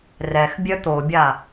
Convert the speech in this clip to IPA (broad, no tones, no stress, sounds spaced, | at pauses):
r ɛ x bʲ œ t̪ o bʲ a